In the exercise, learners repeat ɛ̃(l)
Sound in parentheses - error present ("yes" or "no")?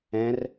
yes